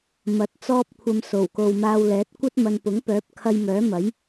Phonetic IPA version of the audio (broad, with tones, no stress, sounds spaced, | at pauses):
m ɐ˨˥ t̚ t͡s ɔː˧ p̚ kʷʰ ɐ˨ m s o˨˩ w k o˨ w m aː˧ w l ɛː˨˥ t̚ kʷ ɐ˥ t̚ m ɐ˨ n p ʊ˨˥ ŋ p œː˨˥ p̚ kʰ ɐ˧ j m œː˨˥ m ɐ˨˥ j